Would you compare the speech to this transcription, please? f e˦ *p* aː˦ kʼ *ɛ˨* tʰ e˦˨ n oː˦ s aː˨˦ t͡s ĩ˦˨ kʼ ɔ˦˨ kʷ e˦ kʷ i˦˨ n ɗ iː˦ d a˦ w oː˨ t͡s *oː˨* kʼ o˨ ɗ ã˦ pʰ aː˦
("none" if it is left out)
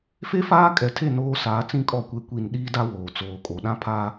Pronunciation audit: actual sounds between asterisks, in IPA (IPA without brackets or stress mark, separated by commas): f, ɛ˨, oː˨